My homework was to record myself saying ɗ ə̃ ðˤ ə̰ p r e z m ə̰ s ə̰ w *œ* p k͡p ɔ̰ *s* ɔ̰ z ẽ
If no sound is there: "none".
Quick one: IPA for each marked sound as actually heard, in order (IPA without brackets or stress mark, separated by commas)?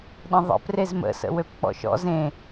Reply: ø, ʃ